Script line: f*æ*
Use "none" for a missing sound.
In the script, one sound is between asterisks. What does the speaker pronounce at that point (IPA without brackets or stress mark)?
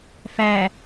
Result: æ